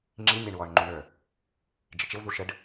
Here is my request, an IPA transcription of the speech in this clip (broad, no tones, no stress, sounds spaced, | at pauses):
ŋ͡ǁ i nʲ æ ɳ w ɔ ɳ ŋ͡ǃ u ɳ ə˞ | d͡ʒ ɪ t͡ʃ ɪ w ð u ʃ ə ɖ